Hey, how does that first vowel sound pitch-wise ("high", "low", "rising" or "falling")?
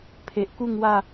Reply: low